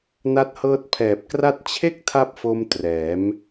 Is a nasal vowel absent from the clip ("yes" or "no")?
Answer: yes